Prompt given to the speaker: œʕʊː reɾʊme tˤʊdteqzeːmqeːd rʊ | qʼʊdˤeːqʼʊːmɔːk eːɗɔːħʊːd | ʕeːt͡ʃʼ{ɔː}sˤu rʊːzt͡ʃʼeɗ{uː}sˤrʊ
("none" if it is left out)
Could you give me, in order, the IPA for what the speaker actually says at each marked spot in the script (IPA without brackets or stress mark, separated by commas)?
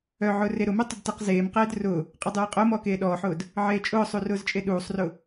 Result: ʊː, uː